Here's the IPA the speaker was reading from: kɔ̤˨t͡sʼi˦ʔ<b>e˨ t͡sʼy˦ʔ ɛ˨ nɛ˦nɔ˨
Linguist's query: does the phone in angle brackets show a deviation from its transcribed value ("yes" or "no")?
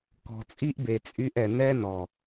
no